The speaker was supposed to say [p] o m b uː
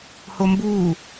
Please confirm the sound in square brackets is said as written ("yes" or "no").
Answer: no